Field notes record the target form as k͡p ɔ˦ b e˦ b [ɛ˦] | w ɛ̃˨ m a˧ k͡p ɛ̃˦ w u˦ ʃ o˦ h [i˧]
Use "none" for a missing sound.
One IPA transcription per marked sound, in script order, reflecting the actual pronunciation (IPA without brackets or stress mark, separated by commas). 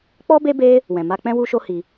e˦, i˧